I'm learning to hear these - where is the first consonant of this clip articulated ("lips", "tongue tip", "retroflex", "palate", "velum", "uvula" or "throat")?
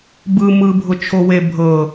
lips